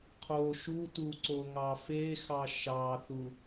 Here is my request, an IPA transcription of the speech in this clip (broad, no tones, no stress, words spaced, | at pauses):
qʰo ʃutu ǀoŋɑfexɑ ʃɑθu